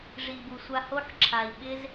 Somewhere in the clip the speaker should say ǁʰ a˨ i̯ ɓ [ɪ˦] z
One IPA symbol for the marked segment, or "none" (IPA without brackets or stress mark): ɪ˦